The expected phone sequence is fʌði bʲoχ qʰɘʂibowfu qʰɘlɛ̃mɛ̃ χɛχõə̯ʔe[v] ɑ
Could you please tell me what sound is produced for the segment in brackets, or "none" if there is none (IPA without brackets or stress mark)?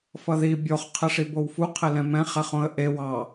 w